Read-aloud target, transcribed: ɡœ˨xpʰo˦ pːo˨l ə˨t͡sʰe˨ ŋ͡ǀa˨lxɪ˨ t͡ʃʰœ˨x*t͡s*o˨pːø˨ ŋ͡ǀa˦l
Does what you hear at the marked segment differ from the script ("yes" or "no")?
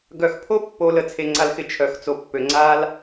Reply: no